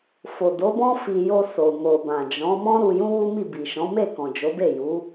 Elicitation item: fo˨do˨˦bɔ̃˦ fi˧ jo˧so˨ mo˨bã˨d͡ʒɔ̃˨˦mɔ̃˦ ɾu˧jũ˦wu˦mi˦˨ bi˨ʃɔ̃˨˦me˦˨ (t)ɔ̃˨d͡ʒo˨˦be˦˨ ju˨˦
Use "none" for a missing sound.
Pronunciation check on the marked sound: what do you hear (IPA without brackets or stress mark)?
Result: k